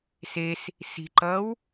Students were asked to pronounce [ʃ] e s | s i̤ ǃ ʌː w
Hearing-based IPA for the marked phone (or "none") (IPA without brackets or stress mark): s